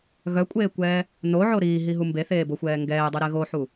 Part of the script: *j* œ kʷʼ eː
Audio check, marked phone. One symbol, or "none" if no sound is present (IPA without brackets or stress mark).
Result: ɣ